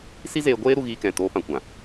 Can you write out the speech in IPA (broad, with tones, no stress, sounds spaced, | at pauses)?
s i˦ z eː˧ ɡʷ eː˦ ɾ u˧ ɣ iː˧ k ɛ̃˨ t oː˧ p ã˧ kʷ ã˨